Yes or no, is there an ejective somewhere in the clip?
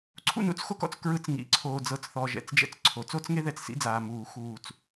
no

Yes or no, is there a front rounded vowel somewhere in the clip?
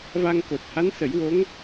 no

